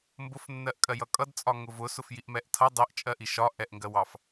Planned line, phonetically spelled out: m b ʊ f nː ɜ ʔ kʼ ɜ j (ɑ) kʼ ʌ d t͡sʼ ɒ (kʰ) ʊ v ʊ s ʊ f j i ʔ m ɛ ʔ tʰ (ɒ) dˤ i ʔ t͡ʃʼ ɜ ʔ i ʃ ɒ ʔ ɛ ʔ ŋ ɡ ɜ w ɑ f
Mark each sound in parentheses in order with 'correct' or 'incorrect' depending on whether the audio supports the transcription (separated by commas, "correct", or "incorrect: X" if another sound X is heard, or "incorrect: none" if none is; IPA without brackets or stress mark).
incorrect: ʌ, incorrect: ŋ, incorrect: ʌ